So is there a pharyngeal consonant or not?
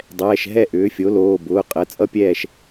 no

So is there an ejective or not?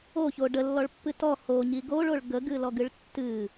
no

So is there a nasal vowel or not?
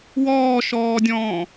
yes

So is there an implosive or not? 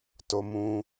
no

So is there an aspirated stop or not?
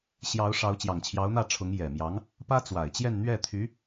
yes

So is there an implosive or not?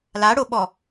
yes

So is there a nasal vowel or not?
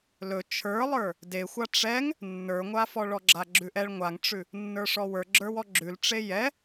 no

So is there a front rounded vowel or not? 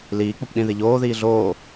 no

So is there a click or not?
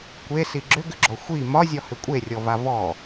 yes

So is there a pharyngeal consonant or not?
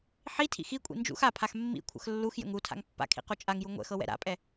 yes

